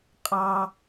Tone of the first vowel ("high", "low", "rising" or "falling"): high